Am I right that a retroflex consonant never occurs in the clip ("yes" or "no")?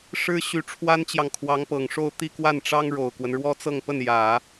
no